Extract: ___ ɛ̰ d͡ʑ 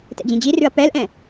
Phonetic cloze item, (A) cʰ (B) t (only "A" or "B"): B